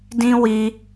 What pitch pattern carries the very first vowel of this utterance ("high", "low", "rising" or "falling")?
high